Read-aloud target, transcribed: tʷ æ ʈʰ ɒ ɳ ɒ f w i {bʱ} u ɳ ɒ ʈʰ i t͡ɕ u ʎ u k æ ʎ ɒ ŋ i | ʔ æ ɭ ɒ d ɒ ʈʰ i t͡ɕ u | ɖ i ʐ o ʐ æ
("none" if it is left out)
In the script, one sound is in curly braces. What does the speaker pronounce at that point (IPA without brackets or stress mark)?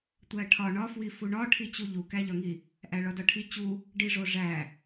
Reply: f